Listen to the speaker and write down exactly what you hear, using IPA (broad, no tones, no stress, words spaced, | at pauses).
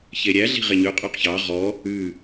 çeɾʲæɮi̤ ʁeɲʉ qʼʉqçɑ ʁɔ | ʉ